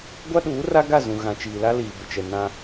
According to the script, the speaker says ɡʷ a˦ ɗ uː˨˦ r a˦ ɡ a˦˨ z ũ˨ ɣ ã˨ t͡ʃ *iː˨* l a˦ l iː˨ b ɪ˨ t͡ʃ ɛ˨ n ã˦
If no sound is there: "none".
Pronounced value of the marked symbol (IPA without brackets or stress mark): iː˨